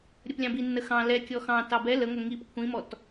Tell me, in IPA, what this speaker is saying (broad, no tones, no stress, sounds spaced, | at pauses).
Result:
ɾʲ ə p lʲ ɑ̃ b i nː ə x ɑ̃ l ɛ kʲ ɔ x ɑ̃ t ɑ b ɛ l ə ŋʷ ɛ ŋ i p kʷʰ ĩ m ɔ t